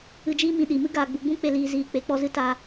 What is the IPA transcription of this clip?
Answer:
ɨ˧ d͡ʒ iː˦ m ĩ˧ ɗ i˨ m ɨ˦ ɡ aː˨ ɡ͡b u˨ ɡ͡b ũ˦ k͡p e˧ l iː˧ z iː˧ k͡p e˨˦ k͡p ɔ˦ z ɨ˦ t a˧

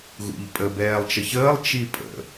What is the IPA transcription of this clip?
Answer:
ɣ ṵ ʎ pʼ ə b ɛː lˠ t͡ʃ ə ç əː lˠ t͡ʃ i pʼ ə̰

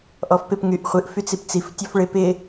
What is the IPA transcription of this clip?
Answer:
ʔ ɔ f p ɪ p ŋ y ʔ χʷ ɨ ʔ f y t͡s i p t͡s i f tʲ ɔ f ɭ ɪ p ɪ

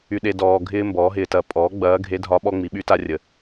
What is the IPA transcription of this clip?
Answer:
y˨ ɗ e˨ d ɔː˨ ɡʱ ɪː˥ m b ɔː˩˥ ɦ ɪː˨ t ɐ˧˥ pʼ ɔː˩˥ ɡ͡b ɐː˧˥ ɡʱ e˧˥ dʱ ɒ˧˥ ɓ ɔ˥ ŋ͡m i˩˥ ɓ y˥ t a˥ rʲ ə˨

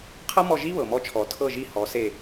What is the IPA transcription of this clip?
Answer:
qʰ ɤ˥ m ɔ˦˨ ʒ i˥ β ɤ˩ m ɔ˦˨ t͡ʃʰ ɔ˨˩˦ tʰ ɤ˦˨ ʒ i˦˨ h ɔ˨˦ s e˦˨

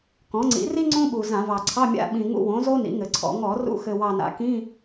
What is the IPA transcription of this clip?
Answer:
k ɔ̃˩˥ ŋ͡ǀ ḭ˩˥ r i˥ ŋ͡ǀ õ˥ ɓ u˨˩ z ã˧˩˧ v ɑ˨˩ ǀʰ ɑ˧˥˧ mʲ a̰˧˥˧ ɓ ĩ˨˩ ŋ ṵ˧˥˧ w õ˩˥ z o˥ n ḭ˩˥ ŋ ɘ˨˩ ǀʰ ɔ̰˧˩˧ ŋ ɔ˧˩˧ r ṵ˧˥˧ x ɘ˨˩ w ɑ˨˩ n a̰˩˥ k ĩ˧˥˧

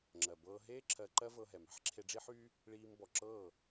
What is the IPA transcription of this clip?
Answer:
ŋ͡ǁ ɜ˨ b ɤː˧ ɦ eː˦ ǁʰ ɜ˧ ǃ ɜ˦ v ɤ˧ ɦ ɛ˨ m ɛ̤˦ ħ ǁʰ e˧ ɖ͡ʐ i˦ ħ yː˦ | ɭ iː˧ m b ɔ˨ ǁ ɤː˦˨

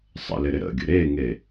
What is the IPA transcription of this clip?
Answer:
sˤ ə̰ l ɪ ɾ ɪ ɾ ə̰ ɡʲ ə̰ ɾ e ŋ e

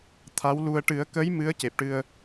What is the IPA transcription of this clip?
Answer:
t̪ʰ a˧˥ w l u˧ ə̯ ʈ ɨ˨˩˦ ə̯ k ə˧˥ j m ɨ˧˥ ə̯ c e˨˩ p̚ ʈ ɨ˧ ə̯

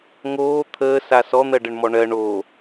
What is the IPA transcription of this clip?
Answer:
ŋ oː t̪ʰ əː s a s ɔ n̪ ɜ ɖ ə ɳ m ɔ ɳ ɜ ɳ o

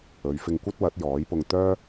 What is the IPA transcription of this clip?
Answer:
ɵ˨˧ ɥ f ɪ˧ ŋ kʷ ɐ˥ t̚ w ɐ˨˥ t̚ j ɔː˨˥ j p ʊ˧ ŋ t̪ œː˥

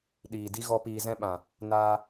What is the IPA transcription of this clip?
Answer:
ɗ iː˨ d i˦ ɣ ɔ˦ p iː˧ z ɛ̃˦ ɓ ã˨ | n aː˧

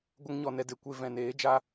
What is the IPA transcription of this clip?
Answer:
ɡʷ ə˦ ŋ ɲ ɔ˧ n ɛ˧ d e˨ kʷ e˧ v ɛ̃˨ n eː˨˦ d͡ʒ a˦

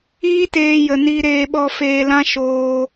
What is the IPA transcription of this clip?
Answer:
iː˦ t eː˧ j ə˨ n i˧ ɾ eː˧ ɓ ɔ˧ f eː˧ l ã˦ ʃ oː˧

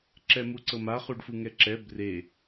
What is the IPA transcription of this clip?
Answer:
ǁ ɛ m u ǀ ɤ m a χ u ɖ f ɯ ŋ ɛ ǁ ɛ b r e

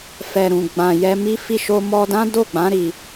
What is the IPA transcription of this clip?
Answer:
f ɛ˨ ɾ ũ˨ ɡ͡b ã˨ j ɛ˧ m i˦ f i˦˨ ʃ o˧ m ɔ˧ d ã˦ d o˦˨ ɡ͡b ã˨˦ ɾ i˧

